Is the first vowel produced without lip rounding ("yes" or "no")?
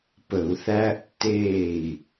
yes